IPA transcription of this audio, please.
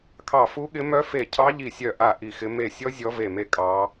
kʰ ɑ˦˨ f u˦˥ ɠ ɪ˦˥ m œ˦˥ f e˦˨ cʰ ɑ˦˥ ʎ i˦˨ sʲ œ˦˨ ʔ a˦˨ ʔ i˦˨ x ɪ˦˥ m e˦˨ sʲ ɔ˦˥ zʲ ɔ˦˥ v e˦˨ m e˦˥ kʼ ɑ˦˥

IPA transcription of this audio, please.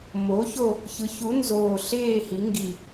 m o˩˥ ç o˦˨ | ç ɯ˩˥ ç u˩˥ n z oː˨˩ ɬ eː˦˨ h i˩˧ ŋ ɡ i˨˩

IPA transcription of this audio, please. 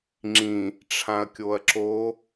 ŋ͡ǁ ĩ | ʈ͡ʂʰ ã ɐ̯ kʲ o ɐ̯ ǁ o

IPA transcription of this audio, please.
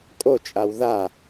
kʼ o t͡ʃʼ a w ð a

